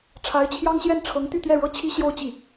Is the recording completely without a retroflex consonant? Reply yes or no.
no